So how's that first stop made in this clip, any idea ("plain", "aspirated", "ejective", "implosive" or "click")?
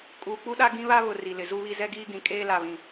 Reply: ejective